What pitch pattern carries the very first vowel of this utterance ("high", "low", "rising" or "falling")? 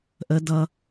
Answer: high